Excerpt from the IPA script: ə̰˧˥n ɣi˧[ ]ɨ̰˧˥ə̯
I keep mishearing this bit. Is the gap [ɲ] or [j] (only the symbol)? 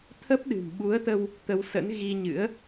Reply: ɲ